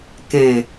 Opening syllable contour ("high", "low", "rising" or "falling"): low